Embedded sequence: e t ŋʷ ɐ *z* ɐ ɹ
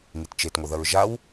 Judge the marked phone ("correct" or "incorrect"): incorrect